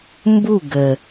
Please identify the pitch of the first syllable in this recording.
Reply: falling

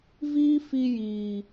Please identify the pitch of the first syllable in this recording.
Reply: high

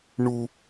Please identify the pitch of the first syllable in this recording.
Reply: low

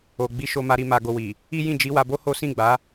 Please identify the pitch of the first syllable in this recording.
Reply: low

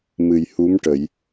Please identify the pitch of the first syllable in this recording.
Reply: low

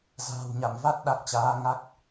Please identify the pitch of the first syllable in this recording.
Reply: low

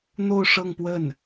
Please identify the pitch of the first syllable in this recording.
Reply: falling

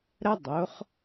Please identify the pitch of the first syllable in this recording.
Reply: high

